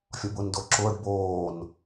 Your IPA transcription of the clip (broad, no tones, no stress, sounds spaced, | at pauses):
fʲ ɒ b ʊː n d o ǁ ʊː ɖ b oː n